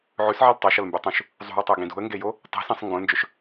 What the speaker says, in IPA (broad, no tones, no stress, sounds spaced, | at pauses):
ʕ ʉ s ʕ i l tˤ o ʃ ɐ l m b ʉ tˤ ũ ʃ | zˤ ṳ ə̯ tˤ o ɡ ĩ d ṳ ə̯ ŋ ɡ e j o | tˤ e̤ s ĩ sˤ ŋ ɡ õ l n d͡ʒ ɵ ʃ